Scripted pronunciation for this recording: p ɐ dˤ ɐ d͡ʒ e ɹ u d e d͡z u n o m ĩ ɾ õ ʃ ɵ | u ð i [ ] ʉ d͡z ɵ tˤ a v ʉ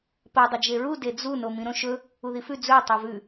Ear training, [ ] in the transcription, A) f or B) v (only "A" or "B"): A